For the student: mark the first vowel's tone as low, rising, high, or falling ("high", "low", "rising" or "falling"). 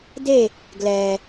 falling